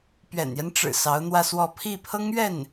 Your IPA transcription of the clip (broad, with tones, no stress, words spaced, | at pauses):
pɥɛ̰˨˩njɛ˦nʈ͡ʂɻ̩˨˩ sɑ˧˥ʊ̯n̪wä˥˧swɔ˥˧ pʰi˥˩pʰɤ˥ŋɥɛ˥˩n